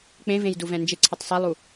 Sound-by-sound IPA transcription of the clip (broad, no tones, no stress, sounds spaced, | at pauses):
k͡p ẽ v ẽ j d u v ɛ̃ n d͡ʒ ɪ ǀʰ ɪ tˤ sˤ ɛ lˠ u